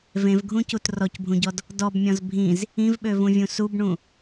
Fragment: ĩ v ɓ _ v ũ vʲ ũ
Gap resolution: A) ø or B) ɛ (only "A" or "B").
A